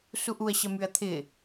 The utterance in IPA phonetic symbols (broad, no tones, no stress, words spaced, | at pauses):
suʔuɐ̯ ɕɐmyɐ̯t̪ʰɪ